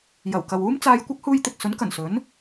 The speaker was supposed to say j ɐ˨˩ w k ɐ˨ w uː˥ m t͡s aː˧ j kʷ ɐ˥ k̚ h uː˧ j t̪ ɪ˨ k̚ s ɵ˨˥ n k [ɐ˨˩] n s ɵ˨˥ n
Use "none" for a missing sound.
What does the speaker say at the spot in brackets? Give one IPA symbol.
ɐ˨˩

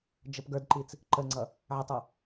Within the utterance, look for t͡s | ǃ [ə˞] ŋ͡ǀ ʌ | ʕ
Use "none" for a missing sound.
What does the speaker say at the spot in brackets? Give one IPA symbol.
ə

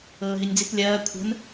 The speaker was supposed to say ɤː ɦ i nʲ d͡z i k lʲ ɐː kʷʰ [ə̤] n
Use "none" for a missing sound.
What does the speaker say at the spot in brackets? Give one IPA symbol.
ə̤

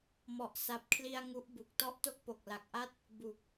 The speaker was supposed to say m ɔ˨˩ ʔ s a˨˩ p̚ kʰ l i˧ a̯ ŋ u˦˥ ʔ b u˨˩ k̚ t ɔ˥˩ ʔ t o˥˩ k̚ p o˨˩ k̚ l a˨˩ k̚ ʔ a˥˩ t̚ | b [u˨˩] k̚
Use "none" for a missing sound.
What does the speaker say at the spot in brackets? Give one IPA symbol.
u˨˩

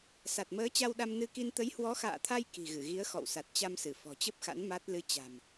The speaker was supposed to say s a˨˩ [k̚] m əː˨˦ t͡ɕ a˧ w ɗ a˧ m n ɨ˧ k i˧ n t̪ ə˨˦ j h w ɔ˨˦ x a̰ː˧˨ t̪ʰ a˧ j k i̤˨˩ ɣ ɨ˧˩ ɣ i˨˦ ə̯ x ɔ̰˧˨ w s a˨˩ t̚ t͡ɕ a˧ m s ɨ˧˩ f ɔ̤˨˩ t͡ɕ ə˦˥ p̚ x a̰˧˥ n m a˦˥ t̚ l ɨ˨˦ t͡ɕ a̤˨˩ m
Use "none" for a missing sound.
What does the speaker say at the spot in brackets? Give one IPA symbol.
t̚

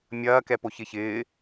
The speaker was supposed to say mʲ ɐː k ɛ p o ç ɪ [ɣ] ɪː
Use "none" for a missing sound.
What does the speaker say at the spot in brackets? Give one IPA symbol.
ç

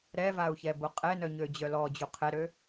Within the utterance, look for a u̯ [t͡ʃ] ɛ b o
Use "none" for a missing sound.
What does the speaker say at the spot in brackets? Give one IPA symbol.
ç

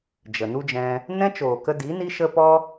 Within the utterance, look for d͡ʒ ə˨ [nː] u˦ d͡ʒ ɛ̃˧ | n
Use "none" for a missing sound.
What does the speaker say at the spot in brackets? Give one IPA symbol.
n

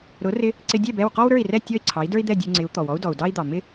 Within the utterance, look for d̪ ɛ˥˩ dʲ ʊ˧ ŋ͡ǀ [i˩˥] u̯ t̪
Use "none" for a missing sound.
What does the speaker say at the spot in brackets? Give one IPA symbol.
ɪ˩˥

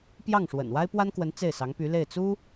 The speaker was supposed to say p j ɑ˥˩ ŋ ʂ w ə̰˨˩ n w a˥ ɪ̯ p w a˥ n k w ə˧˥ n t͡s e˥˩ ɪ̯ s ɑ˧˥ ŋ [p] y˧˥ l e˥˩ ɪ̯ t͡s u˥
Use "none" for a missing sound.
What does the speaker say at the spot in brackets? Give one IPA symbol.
p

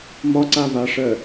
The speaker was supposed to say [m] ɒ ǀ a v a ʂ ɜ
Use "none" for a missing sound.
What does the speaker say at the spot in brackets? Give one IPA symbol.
m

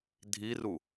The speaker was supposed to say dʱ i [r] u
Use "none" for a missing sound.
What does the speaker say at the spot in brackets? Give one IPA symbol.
r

